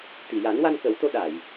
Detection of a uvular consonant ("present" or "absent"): absent